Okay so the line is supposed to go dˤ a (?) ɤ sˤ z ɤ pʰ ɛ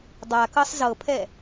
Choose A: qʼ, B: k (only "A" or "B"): B